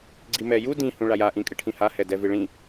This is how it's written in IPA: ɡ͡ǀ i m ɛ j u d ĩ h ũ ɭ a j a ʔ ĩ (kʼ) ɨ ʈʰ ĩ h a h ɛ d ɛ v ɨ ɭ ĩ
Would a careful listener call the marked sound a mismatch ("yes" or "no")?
no